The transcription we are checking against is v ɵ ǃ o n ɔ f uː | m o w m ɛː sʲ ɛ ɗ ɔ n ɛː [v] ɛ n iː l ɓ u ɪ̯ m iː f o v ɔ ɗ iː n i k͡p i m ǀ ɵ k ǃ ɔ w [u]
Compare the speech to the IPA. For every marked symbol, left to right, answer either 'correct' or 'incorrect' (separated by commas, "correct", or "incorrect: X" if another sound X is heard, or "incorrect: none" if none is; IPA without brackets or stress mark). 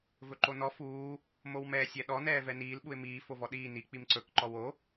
correct, incorrect: o